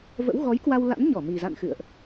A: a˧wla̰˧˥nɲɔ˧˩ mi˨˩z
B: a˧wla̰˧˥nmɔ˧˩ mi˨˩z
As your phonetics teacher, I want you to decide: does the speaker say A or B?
A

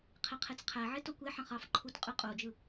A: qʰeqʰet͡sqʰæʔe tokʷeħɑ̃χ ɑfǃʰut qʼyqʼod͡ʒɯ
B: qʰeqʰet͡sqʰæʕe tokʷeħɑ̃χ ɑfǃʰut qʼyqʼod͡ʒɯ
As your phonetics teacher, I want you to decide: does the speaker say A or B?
B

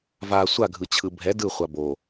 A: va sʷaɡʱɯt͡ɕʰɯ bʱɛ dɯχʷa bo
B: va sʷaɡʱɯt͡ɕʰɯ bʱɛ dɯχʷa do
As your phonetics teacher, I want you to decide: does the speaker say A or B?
A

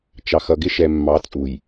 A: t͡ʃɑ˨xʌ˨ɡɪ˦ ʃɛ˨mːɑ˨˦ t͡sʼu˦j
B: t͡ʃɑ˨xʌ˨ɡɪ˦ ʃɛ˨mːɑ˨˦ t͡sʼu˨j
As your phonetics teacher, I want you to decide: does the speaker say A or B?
B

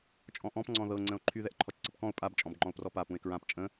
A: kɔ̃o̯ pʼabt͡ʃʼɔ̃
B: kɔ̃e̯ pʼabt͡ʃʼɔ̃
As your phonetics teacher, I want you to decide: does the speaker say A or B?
A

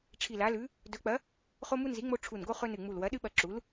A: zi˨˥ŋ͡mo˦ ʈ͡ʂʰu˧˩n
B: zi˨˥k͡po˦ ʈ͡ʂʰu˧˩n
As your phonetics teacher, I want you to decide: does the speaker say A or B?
A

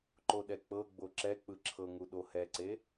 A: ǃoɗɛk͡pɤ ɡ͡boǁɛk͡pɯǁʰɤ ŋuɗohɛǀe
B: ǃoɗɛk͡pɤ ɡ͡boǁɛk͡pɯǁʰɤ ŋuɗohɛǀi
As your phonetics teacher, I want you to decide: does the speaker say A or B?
A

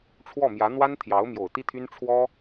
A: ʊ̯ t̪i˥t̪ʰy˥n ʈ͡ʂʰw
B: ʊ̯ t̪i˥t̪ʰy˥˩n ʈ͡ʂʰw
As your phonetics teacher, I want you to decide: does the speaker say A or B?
A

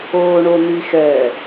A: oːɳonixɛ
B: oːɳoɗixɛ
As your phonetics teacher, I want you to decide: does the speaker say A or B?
A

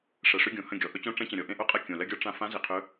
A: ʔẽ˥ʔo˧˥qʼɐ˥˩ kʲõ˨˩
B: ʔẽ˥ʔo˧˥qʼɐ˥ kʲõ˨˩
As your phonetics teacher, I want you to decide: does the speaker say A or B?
A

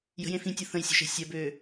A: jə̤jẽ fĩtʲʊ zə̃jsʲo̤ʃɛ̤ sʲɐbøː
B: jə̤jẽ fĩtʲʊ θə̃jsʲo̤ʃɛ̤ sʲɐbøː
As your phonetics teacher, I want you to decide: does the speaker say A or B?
B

